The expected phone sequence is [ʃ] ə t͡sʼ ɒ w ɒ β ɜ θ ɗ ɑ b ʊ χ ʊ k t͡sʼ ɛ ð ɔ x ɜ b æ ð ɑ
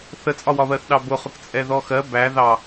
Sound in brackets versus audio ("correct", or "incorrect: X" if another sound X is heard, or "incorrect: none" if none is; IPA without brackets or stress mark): incorrect: θ